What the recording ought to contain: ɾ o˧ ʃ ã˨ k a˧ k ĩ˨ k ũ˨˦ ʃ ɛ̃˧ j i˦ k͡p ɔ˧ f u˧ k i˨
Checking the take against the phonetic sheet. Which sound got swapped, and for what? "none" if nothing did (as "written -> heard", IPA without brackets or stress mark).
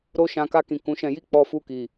none